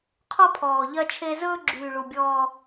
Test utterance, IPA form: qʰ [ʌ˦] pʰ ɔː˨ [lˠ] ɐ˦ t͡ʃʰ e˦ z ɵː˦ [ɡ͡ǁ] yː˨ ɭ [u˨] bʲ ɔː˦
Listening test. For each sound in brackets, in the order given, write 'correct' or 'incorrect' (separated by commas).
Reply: incorrect, incorrect, correct, correct